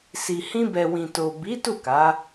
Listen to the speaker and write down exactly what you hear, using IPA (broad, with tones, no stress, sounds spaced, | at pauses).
s i˨ h ĩ˧ b ɛ˨ w ĩ˨ t o˨ b i˨˦ t u˦˨ k a˨˦